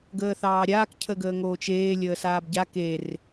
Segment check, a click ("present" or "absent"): absent